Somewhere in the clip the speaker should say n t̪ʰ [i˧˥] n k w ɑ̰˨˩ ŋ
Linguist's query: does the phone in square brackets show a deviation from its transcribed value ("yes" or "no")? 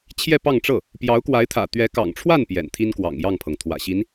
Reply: yes